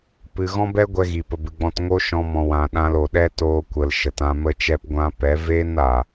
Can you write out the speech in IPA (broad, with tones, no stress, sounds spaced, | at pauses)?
p ɨ˨ ɣ ɔ̃˦ b ɛ˦ ɡʷ ɛ˧ ɣ i˨ p ə˨ b ɨ˨ ɡ͡b ɔ̃˧ t ŋ o˦ ʃ ɔ̃˧ m ɔ̃˨ w ã˨ ɗ ã˧ l o˨ ɗ ɛ˦ t oː˧ kʷ ə˨ l ʃ ə˨ t ã˧ m ə˦ t͡ʃ ɛ˦ p ɡʷ ã˦ p ɛ˨˦ v eː˦ n aː˨